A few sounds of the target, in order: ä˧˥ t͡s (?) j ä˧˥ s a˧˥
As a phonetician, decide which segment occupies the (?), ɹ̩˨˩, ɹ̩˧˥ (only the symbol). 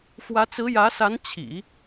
ɹ̩˧˥